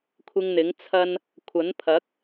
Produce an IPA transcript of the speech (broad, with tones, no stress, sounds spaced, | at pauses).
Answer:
kʷʰ ɪ˧ ŋ n̪ ɪ˨˥ ŋ t͡sʰ ɐ˧ n | kʷʰ ɐ˨˥ n pʰ ɐ˨˥ k̚